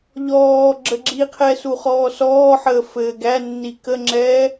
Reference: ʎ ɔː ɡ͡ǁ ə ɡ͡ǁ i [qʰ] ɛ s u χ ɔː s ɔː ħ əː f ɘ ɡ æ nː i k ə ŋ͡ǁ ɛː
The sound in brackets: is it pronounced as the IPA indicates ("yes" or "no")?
yes